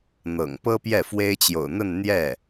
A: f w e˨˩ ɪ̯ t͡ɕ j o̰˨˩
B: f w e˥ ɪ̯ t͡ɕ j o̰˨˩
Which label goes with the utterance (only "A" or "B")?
B